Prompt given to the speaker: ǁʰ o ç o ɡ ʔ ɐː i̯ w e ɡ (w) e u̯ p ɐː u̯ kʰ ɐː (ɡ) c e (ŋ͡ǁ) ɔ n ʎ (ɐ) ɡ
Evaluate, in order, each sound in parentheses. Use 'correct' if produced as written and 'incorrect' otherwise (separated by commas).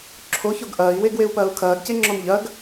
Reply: correct, correct, correct, correct